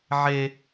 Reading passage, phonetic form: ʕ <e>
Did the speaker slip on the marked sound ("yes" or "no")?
no